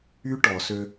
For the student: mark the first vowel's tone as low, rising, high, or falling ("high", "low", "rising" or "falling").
high